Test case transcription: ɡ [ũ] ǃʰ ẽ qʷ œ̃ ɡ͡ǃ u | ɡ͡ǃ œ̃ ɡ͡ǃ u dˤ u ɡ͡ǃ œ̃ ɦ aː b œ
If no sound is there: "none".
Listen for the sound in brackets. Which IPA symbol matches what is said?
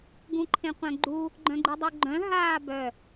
ũ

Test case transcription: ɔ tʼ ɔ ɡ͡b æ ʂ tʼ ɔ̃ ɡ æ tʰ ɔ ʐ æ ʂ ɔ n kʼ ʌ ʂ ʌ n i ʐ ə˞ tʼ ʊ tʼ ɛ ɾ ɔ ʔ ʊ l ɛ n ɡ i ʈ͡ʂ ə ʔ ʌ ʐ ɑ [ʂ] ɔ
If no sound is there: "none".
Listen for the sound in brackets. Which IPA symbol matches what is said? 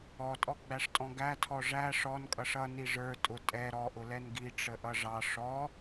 ʂ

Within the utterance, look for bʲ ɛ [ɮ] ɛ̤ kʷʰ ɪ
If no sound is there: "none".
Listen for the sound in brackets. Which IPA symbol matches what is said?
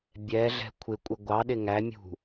ɮ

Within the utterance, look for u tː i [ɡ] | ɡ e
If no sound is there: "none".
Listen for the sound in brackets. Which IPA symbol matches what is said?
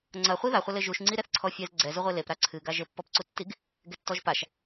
ɡ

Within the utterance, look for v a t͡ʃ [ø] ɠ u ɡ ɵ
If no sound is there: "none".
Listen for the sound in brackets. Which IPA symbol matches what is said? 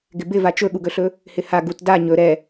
ɵ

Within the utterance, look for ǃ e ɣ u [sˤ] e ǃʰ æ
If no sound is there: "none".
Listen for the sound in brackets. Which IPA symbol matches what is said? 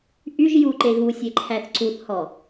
sʲ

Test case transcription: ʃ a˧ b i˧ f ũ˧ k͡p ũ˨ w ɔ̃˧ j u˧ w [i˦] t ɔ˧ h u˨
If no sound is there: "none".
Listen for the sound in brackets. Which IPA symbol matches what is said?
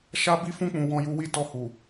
i˦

